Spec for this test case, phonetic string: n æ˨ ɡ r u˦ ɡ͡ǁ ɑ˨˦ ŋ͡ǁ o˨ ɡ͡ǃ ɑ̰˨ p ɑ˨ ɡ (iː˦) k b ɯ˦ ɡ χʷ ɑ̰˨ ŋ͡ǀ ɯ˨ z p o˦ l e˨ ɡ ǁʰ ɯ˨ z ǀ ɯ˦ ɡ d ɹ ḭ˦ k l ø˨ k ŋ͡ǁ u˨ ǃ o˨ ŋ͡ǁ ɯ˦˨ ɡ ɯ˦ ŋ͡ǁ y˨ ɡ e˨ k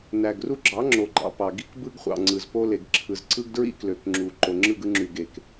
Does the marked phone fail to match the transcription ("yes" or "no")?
yes